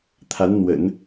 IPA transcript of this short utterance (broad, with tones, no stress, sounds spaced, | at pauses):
t̪ʰ a˧˥ n n̪ w ə̰˨˩˦ n